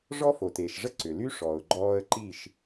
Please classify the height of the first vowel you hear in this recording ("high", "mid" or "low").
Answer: mid